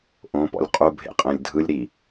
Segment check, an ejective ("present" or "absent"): present